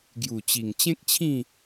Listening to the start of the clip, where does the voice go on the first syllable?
low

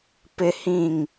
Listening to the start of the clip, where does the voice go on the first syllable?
low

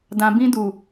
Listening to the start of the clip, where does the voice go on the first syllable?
low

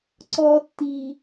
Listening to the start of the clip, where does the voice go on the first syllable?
low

